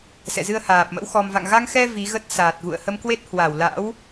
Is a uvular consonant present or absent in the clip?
absent